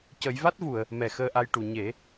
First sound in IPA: c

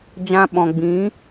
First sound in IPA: d͡ʒ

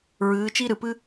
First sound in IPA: ɹ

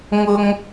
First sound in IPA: ŋ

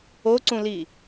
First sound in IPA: o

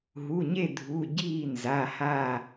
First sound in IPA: ɦ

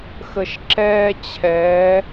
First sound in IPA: x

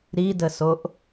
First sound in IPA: ɾ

